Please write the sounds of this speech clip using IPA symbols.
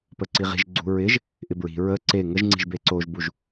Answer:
pəǀiʁi̤ʒ ɡ͡ǀṳɹɪʒ | ʔɪbɹi̤ ɹə ǀe ŋəʒ ŋ͡ǀi̤ʒbeǀoʒbuʒ

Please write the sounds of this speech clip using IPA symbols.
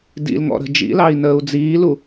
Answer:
dḭl ŋɔ̰ɾə̤ d͡ʒḭlɑi̯ nəːu̯d͡ziːlu

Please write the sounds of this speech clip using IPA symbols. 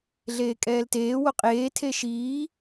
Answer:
ɮeːkʼɛːlteː woqʼeː tʰeʃiː

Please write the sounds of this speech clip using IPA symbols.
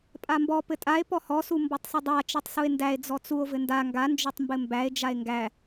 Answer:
pʼambɔ pɘtʼae̯ pɔhɔ sumbɔtˤsˤɘdˤa t͡ʃɔtˤsue̯ndæe̯ d͡zɔt͡suo̯ vɘnda ŋɡa nd͡ʒotˤmbɘmbæe̯ d͡ʒae̯ŋɡæ

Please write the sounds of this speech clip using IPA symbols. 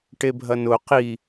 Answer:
ʈebʱɐnʊ qi

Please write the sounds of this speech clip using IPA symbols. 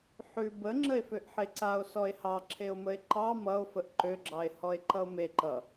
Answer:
ħʉ bə ŋ͡ǁəe̯føʔħeǀao̯ sɔe̯hɑǁʰeo̯məe̯ ǃɑ mʌo̯fəʔ ǃøɡ͡ǁɑe̯ hɔe̯ǃʌo̯me ǃʌ

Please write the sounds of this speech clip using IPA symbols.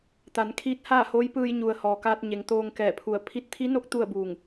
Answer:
t̪a˩˧nkʰiː˧˥t̚haː˥˨ ho˧˥jpɯː˧j ɲu˩ə̯ hɔː˩kaː˧t̚ ɲe˩˧ŋt̪oː˧ŋ kɛː˧˩pʰu˧˩ə̯ pʰi˧t̚t̪ʰi˧˥no˧˥k̚ t̪u˥˨ə̯buː˧˩ŋ

